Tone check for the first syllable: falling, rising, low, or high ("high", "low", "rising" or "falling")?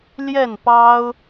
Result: falling